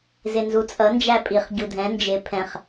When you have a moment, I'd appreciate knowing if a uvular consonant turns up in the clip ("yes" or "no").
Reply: yes